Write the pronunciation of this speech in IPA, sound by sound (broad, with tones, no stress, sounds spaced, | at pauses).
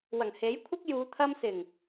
w ɐ˨˩ ŋ h e˨˥ j kʷʰ ɪ˥ k̚ j uː˨˧ t̪ʰ ɐ˥ m s ɪ˨˩ ŋ